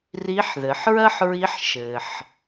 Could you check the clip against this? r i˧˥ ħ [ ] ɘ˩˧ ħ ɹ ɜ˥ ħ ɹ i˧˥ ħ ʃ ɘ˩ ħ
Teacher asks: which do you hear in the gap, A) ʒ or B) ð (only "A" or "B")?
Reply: B